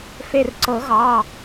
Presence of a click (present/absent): present